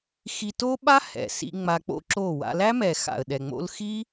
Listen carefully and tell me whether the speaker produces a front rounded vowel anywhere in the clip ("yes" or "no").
no